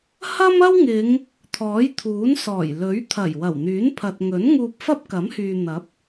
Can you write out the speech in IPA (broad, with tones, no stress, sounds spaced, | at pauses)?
h ɐ˥ m ɐ˥ w ŋ ɪ˨˧ ŋ | t̪ʰ ɔː˨˥ j t̪ʰ uː˨˥ n s ɔː˨˩ j l ɵ˨˥ ɥ t̪ʰ ɐ˨˩ j w ɐ˨˩ w n̪ yː˨˥ n pʰ ɐ˨ t̚ ŋ ɵ˨˥ n ŋ uː˧ p̚ f ɐ˥ p̚ k ɐ˨˥ m h yː˨ n̪ ɐ˨˥ p̚